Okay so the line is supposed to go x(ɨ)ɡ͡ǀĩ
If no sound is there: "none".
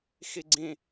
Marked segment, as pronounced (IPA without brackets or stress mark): i